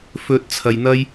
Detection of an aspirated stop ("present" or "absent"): present